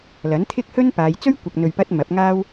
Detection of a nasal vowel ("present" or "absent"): absent